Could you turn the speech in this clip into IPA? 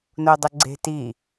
n o dˤ ə ɡ͡ǀ e̤ t i

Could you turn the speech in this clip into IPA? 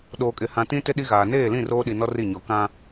ɗ oː˨ kʼ ɪ˨ h ã˨ t ĩ˦ t ɪ˦ ɗ i˦ ɣ aː˨ n eː˦˨ l ĩ˦˨ r oː˦ ɗ i˨ n ɔ˦ r i˦˨ ɲ ɔ˨ k ã˦

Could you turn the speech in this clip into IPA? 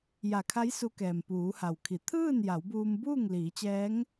j a˧˩ kʰ a˧˥ j s u˧ k ɛː˩ m p uː˩˧ h a˩ w kʰ i˩˧ t̪ʰ ɯː˥˨ n j a˩˧ w b uː˧ m b uː˥˨ ŋ l iː˩˧ t͡ɕ ɛː˧˥ ŋ

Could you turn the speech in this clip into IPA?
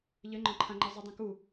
ʎ ɘ ŋ͡ǃ ɔ̃ ǃʰ ã ŋ͡ǃ ɘ zˤ u dˤ ɛ̃ k u

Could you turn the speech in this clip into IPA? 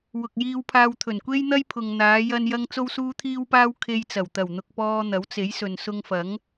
w ʊ˨ k̚ j iː˧ w pʰ aː˧ w t̪ʰ ɵ˨˩ n kʷ e˥ j n̪ ɐ˥ j pʰ ʊ˨ ŋ n̪ aː˨˧ j ɐ˧ n j ɐ˧ ŋ t͡s o˧ w s uː˧ t̪ʰ iː˧ w p aː˧ w kʰ e˧ j t͡s ɐ˨˩ w t̪ ɐ˨˩ w n̪ ʊ˨ k̚ p ɔː˧ n̪ ɐ˨˥ w t͡s e˨˥ j s ɵ˨ n s ʊ˧ ŋ f ɐ˨˥ ŋ

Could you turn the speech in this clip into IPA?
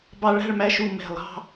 b ɑ˧ ɭ æ̤˥˧ ɭ m æ˧ ʃ u˧˩ m ɛ̤˧˩ lˠ ɑ̤˥˧

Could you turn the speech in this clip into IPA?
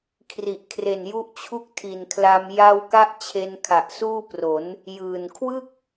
kʰ r i˨˩ ʔ kʰ r e˨˩ n j u˦˥ ʔ t͡ɕʰ u˥˩ k̚ tʰ i˨˩ n kʰ l a˧ m j a˧ w k a˦˥ ʔ t͡ɕʰ e˧ n kʰ a˨˩ ʔ s uː˥˩ p r o˩˦ n | j ɯː˨˩ n kʰ w ɯ˥˩ k̚

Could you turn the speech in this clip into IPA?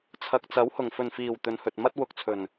t͡sʰ ɐ˨ k̚ t͡s ɐ˨˥ w h ʊ˨˩ ŋ f ɵ˨˩ n f iː˨˩ w t̪ ɵ˨˧ n h ɵ˨ t̚ m ɐ˥ t̚ w ʊ˨ k̚ t͡sʰ ɵ˨˩ n

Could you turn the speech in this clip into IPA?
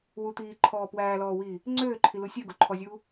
w u t̪ iː ǃʰ ɔː p w æː l ɔː w iː | ŋ͡ǀ øː ǃʰ i l u sʲ ø ɡ u ǃʰ ɔ zʲ uː

